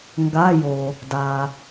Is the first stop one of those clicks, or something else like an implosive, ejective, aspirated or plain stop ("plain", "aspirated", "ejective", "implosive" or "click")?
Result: plain